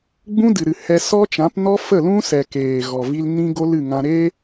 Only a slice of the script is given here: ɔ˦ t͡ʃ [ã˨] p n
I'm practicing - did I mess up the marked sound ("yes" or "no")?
yes